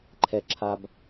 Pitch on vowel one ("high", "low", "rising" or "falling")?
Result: low